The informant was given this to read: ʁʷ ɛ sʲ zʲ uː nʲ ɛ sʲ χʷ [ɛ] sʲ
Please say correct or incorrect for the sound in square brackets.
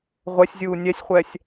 correct